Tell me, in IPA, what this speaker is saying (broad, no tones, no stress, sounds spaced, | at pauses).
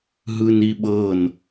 ɦ ɯ n i ɓ ɤ n